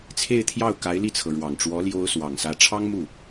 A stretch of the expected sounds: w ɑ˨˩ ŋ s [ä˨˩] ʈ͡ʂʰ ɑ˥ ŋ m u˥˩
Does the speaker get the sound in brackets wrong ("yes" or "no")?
yes